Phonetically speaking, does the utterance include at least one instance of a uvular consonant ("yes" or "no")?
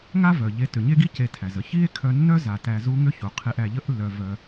yes